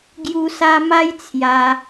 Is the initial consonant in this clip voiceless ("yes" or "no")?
no